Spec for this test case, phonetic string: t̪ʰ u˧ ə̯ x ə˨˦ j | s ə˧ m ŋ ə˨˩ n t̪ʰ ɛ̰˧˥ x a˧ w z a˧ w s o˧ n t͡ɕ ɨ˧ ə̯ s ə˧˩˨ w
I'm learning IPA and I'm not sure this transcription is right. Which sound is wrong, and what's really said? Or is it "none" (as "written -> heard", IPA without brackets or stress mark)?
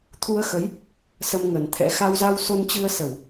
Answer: none